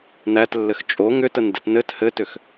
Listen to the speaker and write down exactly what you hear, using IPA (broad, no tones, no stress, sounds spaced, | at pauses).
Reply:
n æ t lː ɘ x t͡ʃʼ o ŋ ʏ t ə n d ɘ t n ɘ t h ɘ t ʏ x